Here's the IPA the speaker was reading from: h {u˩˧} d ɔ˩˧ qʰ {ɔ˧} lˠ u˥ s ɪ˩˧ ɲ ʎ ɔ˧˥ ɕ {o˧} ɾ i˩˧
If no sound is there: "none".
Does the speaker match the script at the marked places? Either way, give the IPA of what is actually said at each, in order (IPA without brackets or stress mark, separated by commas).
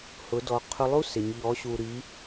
ʊ˩˧, ʊ˧, u˧